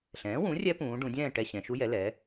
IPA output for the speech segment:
ɬ ɛ̃ː˩˥ w ũ˩˥ rʲ ɛ˦˥ p ũː˩˧ ɖ ũ˩˧ dʲ ɛ̃ː˥˨ ʈ ɛ˧ ɕ ɛ̃˩˧ ʃ u˦˥ j ɛ˩˥ l ɛː˩˥

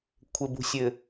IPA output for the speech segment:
kʷʰ ɘ˨ b ṳ˨ sʲ ɘ˨

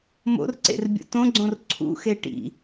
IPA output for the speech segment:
m o̰ r ǀ ḛ r bʲ ṵ t õ ɡ͡ǀ õ r ǀʰ ṵ x e ʈ ḭ

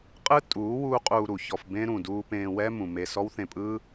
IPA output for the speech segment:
qʼ ɯ˦ tʼ uː˨˦ w uː˦ qʼ uː˧ ɾ u˨ ç ɔ˧ f b ẽ˦ ɾ ũ˨ d uː˧ p ẽː˧ w ɛː˦ m ũ˨ m e˧ s ɔ˦ w θ ẽ˧ pʼ ɯː˦

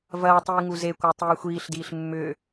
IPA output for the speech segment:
v ɐː tˤ iː ŋ u z e kʷ œ tˤ iː xʷ iː ɬ d iː ɬ mː ʏː

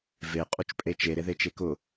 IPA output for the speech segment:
v e qʼ u t͡ʃ pʼ e t͡ʃ e ɾ e ð e t͡ʃ e k ʊ

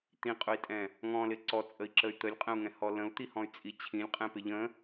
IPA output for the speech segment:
t̪ ĩ qʼ ʊ i̯ tʼ ɛ̃ | ŋ ɔ̃ l ɪ ǀ ɔ t͡sʼ ə i̯ ǁ ə y̯ t̪ ə lʲ qʼ ə̃ u̯ ŋ ɛ̃ h ɔ l ə̃ u̯ t̪ i h ɔ̃ y̯ t͡sʼ i t͡ɕʰ ĩ lʲ qʼ ɛ̃ p ɪ ʎ ə̃

